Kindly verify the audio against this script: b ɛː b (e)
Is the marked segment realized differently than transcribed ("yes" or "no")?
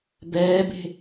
yes